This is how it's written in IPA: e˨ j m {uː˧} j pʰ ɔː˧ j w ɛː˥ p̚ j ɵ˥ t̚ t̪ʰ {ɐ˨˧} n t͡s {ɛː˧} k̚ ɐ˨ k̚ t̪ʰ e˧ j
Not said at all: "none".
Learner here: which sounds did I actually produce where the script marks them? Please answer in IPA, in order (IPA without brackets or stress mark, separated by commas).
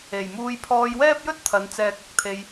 uː˧, ɐ˨˧, ɛː˧